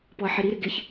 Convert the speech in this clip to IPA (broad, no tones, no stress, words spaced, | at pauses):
pɔɐ̯ħɪɾiɾɪ ɡɪç